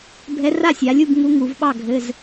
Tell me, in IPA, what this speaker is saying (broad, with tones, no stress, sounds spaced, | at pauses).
bʱ ɛ˧˥ r a˥˨ sʲ a˩˧ lʲ u˥˨ b ŋ u˧˥ ŋ u˩˧ v ɓ ɑ˥˨ ɡʱ ɘ˩˧˩ z